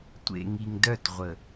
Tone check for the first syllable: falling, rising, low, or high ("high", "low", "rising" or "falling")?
low